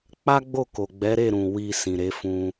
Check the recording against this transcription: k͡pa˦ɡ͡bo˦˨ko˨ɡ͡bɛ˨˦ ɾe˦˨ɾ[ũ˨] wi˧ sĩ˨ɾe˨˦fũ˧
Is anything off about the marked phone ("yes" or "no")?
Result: no